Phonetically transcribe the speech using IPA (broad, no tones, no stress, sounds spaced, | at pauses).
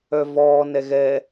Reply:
œ v ɔː n ɛ ɣ ɛ